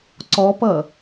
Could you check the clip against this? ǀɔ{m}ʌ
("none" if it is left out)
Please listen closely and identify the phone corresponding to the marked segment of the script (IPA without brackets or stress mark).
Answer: p